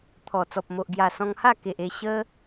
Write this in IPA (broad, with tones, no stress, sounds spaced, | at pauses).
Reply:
t̪ʰ ɔ˨˩ t͡s ɔ˨ p̚ m o˨ ʔ ɡ j a˨˩ s ɔ̃˧ ŋ h a˥˧ k e˨ ʔ e˧ ɕ ə˦